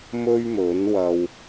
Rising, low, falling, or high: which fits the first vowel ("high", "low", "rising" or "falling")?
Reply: high